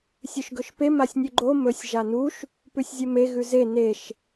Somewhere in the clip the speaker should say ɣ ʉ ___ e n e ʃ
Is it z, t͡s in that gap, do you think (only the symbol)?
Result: z